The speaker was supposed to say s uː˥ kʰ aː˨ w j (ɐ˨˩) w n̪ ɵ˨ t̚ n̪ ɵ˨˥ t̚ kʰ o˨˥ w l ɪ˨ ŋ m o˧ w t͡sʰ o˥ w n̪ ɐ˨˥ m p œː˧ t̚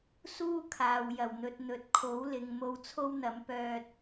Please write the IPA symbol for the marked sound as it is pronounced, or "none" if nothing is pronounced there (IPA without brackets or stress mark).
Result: ɐ˨˩